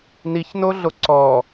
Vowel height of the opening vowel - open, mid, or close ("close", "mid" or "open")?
close